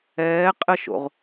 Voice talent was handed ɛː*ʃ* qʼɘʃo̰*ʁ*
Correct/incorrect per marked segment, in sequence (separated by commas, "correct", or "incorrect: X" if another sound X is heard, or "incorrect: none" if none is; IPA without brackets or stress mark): incorrect: none, correct